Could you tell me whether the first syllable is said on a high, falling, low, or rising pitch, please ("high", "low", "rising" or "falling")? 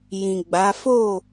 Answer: low